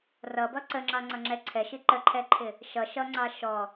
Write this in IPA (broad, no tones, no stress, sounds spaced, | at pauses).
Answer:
r ʌ b ʌ ǀ ə ŋ͡ǁ ɑ ŋ͡ǀ ʌ ŋ͡ǁ ɛ ǀʰ ɛ ʃ i ǃ ə ǃʰ ɛ ǃʰ ɪ | ʃ ʌ ʃ ʌ ŋ͡ǀ ɑ ʃ ɔ